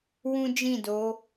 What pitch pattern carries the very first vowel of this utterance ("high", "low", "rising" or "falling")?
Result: high